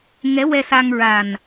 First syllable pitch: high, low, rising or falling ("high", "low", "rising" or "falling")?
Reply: rising